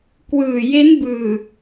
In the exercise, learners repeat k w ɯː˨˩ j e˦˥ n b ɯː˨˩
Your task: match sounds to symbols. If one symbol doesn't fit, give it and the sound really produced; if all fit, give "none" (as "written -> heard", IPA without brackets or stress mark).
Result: none